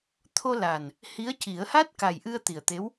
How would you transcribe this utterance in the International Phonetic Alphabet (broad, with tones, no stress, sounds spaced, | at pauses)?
t̪ʰ o˧ l a˨˩ n | h i˧˥ ə̯ c i˨˩˦ ə̯ h a˦˥ t̚ k a˨˩ j ʔ ɨ˧ ə̯ t̪ i˨˩ ə̯ t̪ e˧˥ w